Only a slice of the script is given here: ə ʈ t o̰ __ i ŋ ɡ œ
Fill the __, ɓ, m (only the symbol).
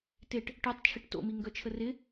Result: m